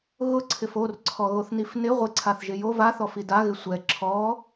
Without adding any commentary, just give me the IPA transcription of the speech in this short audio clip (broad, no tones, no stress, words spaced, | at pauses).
ɣʊǀʰɪf orǀʰɔɣoθnif nɪ ʁʷɪǀʰaθʒɪ jo vaθɔfi daɣɪ sʷɛ ǁʰɔ